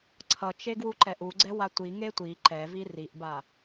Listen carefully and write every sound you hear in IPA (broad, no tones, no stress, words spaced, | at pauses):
ǀʰʌt͡ʃeɡwuǃɛʔ uɡ͡ǀɛwa tʷiŋe tʷi ǃɛvi riʔba